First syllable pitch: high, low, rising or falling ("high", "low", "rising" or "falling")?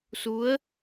rising